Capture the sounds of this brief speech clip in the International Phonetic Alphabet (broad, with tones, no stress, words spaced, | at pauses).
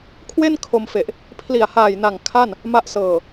kʰwe˥˩n kʰo˧mfe˨˩ʔ | pʰli˨˩a̯haː˨˩j na˨˩ŋ kʰa˥˩n | ma˦˥ʔsɤː˨˩